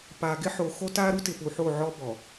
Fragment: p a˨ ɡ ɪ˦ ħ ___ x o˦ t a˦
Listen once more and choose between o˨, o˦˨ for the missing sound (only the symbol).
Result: o˨